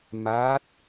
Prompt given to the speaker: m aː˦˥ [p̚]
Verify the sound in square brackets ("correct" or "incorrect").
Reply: incorrect